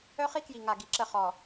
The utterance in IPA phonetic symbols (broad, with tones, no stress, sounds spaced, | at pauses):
œ˦ χ i˦ k j i˨ ŋ a˨ ɡ i˨ ǁ ə˦˨ χ ɔ˨